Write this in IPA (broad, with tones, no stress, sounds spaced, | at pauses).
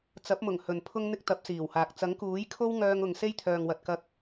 t͡s ɐ˨˥ p̚ m ʊ˨˩ ŋ h ɵ˨ n pʰ ʊ˥ ŋ n̪ ɪ˥ k̚ t̪ ɐ˨˥ p̚ s iː˨˩ w h aː˨ k̚ t͡s ɐ˨˥ ŋ k uː˨˥ j kʰ o˥ w ŋ œː˧ ŋ ʊ˨ ŋ s e˥ j t̪ʰ œː˨ ŋ w ɐ˨ t̚ k ɐ˧ k̚